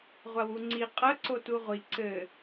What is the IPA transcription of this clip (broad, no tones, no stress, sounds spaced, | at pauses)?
ʁʷ a w u ŋ͡ǀ i qʼ ɐ ǀ o t u ʁʷ i ǀ ɘ